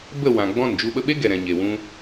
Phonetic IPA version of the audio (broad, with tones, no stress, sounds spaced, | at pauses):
b ə˦˨ w ã˨ ɡ͡b ɔ̃˦˨ n d͡ʒ u˧ ɓ ə˧ ɓ e˦ ɡ ɛ˨ ɾ ɛ̃˨ ɲ e˨ w ũ˧